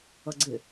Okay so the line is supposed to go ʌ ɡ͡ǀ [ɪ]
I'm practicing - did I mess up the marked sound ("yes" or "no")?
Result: no